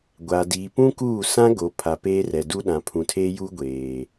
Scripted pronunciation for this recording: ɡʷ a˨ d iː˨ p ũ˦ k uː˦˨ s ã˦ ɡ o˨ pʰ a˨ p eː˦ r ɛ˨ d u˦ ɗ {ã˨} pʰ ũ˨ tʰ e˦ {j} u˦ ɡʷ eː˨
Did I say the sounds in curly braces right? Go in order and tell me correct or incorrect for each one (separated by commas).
correct, correct